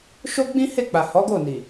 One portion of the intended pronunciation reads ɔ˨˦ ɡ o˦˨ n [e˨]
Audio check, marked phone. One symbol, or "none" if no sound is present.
i˨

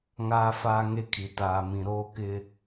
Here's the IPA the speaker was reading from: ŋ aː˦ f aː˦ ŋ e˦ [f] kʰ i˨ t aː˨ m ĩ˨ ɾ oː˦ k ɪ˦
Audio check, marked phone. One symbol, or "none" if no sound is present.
none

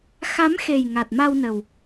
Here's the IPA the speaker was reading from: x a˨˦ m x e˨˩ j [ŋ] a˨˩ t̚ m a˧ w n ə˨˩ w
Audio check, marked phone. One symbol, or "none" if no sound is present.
ŋ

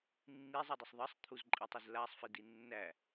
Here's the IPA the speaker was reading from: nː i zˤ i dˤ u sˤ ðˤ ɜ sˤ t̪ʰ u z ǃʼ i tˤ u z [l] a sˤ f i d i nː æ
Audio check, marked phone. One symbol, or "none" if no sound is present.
l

